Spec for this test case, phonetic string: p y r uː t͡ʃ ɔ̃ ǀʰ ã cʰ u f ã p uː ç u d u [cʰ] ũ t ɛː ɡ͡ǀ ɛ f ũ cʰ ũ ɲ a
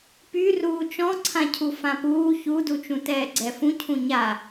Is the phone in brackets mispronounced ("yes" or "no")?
yes